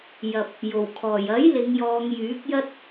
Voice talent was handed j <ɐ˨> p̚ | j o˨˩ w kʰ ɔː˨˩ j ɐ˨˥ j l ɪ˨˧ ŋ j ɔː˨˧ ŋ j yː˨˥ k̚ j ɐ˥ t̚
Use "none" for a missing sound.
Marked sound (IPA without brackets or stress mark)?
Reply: ɐ˨